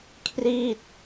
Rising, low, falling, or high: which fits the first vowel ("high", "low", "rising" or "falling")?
falling